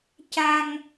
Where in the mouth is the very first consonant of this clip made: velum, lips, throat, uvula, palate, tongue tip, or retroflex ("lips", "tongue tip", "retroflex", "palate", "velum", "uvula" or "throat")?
palate